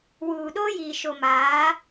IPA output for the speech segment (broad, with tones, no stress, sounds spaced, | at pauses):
w uː˨ ɗ oː˦ j iː˨ ʃ o˨ m aː˨˦